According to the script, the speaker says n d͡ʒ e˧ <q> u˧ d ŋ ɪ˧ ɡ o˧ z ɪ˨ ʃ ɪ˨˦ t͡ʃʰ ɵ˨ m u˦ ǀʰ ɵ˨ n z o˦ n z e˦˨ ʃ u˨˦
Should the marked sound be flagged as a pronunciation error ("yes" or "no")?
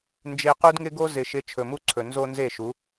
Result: no